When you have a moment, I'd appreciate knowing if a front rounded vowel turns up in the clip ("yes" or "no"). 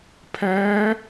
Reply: no